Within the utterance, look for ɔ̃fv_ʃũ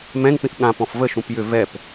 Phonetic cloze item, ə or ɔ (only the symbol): ə